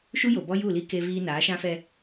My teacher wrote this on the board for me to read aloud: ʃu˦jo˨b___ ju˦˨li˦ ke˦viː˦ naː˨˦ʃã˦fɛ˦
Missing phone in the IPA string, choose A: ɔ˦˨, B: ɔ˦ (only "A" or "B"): B